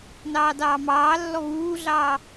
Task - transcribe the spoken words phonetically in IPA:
nɑːdɑːmɑːlːɔ βuːɮɑː

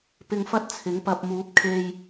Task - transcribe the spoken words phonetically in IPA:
pɪ˧ŋfɐ˥t̚ t͡sʰɪ˨˥ŋpɐ˧p̚ muː˨˥p̚kʰe˧j

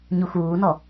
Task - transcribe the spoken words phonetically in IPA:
ɲuxuːnɔ

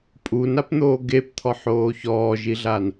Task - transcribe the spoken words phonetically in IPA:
pʼunapn̪oː ɡept̪ʰɔħoː çɔːʒiɮan

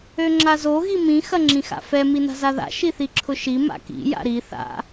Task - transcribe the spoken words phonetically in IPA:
øŋ͡ǁazo ɣimĩ xɐŋ͡ǁĩxa̰fɛ mina̤zaða̰ ʃiθiǁʰʊʃi ma̰kḭ ja̰ɾi θa̰

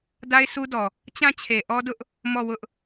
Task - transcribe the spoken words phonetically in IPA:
da˦ɪ̯sʰu˦dɔ˨ | t͡ɕã˦˨t͡ɕʰe˨ʔɔ˦dʊ˦ʔ | mɔ˦˨wʊ˦ʔ

